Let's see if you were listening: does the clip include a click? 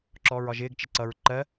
yes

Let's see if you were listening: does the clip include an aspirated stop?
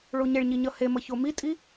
no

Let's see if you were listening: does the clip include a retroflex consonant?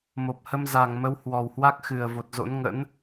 no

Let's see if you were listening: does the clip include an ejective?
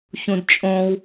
yes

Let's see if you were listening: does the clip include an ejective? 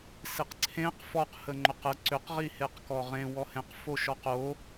no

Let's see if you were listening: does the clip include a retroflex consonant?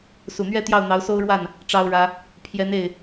yes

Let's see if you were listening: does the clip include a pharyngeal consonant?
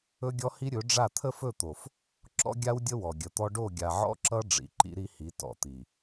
yes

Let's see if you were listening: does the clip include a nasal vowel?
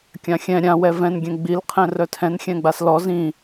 yes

